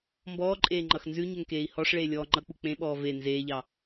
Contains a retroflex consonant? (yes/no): yes